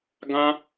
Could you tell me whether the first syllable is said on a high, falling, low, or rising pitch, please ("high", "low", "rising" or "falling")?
high